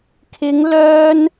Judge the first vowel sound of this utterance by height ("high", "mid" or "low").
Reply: high